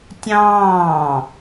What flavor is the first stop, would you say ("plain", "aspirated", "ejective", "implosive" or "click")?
plain